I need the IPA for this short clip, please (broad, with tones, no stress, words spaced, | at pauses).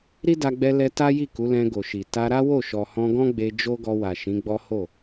ɾi˦da˧ɡ͡bɛ˧lɛ˧ ta˦ji˦˨ku˨˦lɛ̃˧ ɡo˨ʃi˨ ta˧ɾa˦wo˦˨ ʃɔ˨hɔ̃˧ɡɔ̃˦ɡ͡be˧ d͡ʒo˦ɡɔ˧wa˨ ʃĩ˨˦ɡ͡bɔ˦ ho˦˨